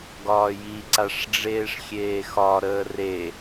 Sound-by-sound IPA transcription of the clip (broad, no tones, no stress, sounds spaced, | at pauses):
ɡ ɒː j i ǀ a ʂ ɖ͡ʐ eː ʂ xʲ eː x ɒ ɾ əː r e